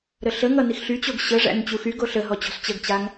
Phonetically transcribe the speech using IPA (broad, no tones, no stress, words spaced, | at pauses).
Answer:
ɾəɬəŋʌ nixɬyt͡ɕoɡ ɕəʐæ̰n t͡ɕuxyɡo ɬəɦɔ t͡ɕɔ̤st͡ɕəɡt͡ɕaŋ